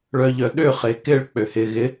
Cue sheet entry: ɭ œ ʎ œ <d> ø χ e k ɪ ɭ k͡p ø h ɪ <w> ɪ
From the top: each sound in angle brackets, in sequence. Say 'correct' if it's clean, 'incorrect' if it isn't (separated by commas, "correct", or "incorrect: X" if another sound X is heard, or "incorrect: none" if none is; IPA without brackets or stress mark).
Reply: incorrect: ɗ, incorrect: ɣ